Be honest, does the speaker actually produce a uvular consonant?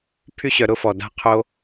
yes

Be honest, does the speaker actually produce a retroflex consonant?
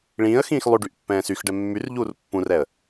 yes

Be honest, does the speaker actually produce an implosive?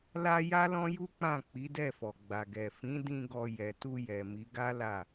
no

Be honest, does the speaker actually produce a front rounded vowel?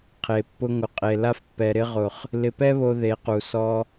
no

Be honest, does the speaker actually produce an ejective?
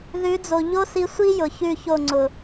no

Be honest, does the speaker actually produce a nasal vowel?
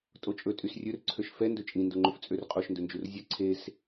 yes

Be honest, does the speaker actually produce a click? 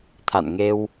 no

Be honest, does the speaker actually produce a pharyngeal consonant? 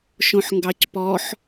yes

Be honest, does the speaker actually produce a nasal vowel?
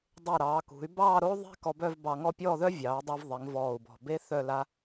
no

